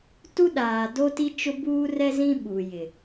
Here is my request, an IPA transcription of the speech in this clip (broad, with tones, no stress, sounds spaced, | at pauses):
t u˦ ɗ aː˨ d o˦ t i˦ t͡ʃ ʊ˦ b uː˦ r ɛ˦ z ĩ˦ ɓ u˨ j ɪ˨